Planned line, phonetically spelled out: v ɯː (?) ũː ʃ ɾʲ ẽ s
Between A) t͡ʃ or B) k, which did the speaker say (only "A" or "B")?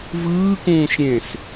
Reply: B